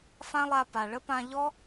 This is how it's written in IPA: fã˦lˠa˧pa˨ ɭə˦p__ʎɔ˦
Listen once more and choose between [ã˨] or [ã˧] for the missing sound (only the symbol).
ã˧